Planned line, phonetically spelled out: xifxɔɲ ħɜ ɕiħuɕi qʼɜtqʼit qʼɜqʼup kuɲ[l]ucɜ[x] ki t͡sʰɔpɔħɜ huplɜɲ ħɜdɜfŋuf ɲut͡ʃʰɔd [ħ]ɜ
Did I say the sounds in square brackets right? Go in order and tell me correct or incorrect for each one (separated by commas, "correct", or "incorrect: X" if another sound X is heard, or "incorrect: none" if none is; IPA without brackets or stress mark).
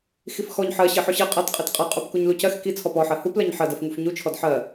correct, correct, correct